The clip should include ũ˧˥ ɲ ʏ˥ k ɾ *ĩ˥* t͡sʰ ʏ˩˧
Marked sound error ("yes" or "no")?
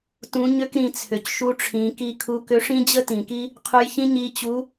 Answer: yes